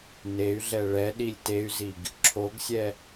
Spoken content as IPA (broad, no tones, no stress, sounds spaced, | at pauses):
n e y̯ ɮ ɛ ɭ ɛ ɗ i lʲ t e y̯ z i ɡ | ǁʰ o ɡ sʲ ɛ